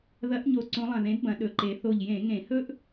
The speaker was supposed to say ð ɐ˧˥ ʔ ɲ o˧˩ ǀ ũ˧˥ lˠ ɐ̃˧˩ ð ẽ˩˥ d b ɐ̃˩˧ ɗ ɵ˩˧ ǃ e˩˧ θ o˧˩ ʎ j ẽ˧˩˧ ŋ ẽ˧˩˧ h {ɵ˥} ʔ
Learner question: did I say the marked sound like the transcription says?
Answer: yes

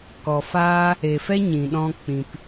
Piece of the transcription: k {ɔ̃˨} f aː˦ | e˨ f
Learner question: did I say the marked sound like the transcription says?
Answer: no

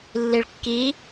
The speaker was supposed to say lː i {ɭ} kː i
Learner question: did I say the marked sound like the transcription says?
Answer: yes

